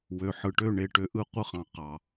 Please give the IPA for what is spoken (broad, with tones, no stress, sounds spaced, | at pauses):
w ø˨ ħ ɯ˨ ʈ ø˦˨ ɳ e˨ ʈ ø˨ ʔ ɯ˦˨ qʷ ɯ˦˨ χ ɑ̃˨ q ɑ˨